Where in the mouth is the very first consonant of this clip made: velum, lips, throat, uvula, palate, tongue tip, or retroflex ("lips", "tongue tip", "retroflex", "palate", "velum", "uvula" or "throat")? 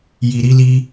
palate